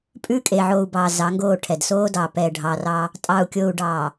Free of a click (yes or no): yes